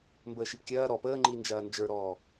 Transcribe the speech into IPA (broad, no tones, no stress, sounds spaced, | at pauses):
m b əː ʃ i p kʲ ɐː ɾ ɔ p əː ŋ͡ǃ i n d͡ʒ ɐː n d͡ʒ ə˞ ɾ ɔː